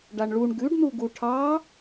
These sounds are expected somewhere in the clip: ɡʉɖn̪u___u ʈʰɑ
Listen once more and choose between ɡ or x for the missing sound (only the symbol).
ɡ